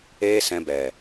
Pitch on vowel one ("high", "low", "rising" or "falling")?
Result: high